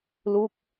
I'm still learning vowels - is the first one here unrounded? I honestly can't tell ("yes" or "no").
no